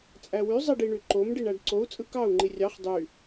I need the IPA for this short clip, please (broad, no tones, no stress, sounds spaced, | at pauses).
t͡sʼ æ w y zˤ i ɖ i ɳ y ǃ o m ɖ i ɳ æ ɖ ǀ o u̯ t͡sʼ ɯ k ɑ u̯ ŋ͡ǃ i rʲ ɑ χ dˤ y